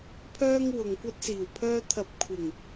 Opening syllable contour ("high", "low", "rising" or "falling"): high